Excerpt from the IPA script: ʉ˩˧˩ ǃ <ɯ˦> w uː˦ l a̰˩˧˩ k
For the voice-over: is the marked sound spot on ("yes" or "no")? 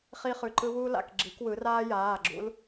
yes